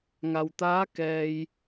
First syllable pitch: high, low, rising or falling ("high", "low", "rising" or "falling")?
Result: low